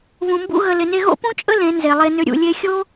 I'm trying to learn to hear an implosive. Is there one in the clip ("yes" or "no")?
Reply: no